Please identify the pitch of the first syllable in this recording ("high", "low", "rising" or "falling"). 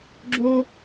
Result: high